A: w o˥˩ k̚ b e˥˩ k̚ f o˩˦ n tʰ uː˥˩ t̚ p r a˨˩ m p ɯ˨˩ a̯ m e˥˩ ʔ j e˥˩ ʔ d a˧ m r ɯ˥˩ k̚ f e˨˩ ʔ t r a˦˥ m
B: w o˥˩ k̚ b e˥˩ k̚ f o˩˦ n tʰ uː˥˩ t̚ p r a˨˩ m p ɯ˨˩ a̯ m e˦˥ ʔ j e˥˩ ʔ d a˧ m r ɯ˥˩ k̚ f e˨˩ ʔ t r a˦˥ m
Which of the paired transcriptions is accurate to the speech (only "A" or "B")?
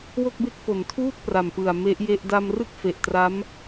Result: B